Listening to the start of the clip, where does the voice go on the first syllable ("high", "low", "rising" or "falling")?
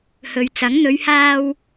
low